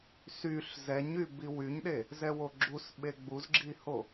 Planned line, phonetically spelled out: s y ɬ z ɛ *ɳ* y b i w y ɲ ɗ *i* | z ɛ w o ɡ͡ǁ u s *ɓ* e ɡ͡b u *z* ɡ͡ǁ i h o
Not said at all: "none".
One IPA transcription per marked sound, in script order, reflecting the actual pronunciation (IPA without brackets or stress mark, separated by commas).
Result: ɲ, e, ɓ, z